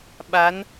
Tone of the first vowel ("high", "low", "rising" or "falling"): rising